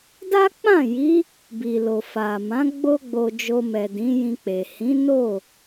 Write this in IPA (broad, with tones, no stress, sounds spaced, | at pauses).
d a˦ k͡p ã˦˨ j i˨˦ | b i˨ l o˨ f a˨ m ã˨˦ ɡ͡b o˦ ɡ͡b o˧ d͡ʒ o˧ m ɛ˨ d ĩ˨˦ j ĩ˧ k͡p e˨ h ĩ˨˦ n o˦˨